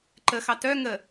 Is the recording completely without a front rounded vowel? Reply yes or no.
no